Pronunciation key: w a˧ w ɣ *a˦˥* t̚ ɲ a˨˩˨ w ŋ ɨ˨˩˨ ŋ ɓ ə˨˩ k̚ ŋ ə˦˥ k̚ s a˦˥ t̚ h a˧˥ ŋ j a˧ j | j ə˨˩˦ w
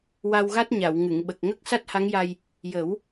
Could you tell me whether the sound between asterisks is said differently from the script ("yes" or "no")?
no